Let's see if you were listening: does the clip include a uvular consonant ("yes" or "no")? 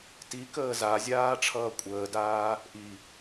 no